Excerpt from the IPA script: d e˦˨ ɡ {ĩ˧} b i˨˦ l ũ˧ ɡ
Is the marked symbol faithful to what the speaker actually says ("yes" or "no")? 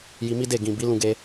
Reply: no